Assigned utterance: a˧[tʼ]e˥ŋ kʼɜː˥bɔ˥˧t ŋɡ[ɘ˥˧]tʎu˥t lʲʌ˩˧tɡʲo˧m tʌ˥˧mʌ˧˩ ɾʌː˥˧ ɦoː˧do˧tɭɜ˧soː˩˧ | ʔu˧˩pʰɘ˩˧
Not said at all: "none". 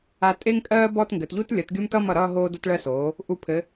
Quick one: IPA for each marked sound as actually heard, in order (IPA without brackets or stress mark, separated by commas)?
tʼ, ɘ˩˧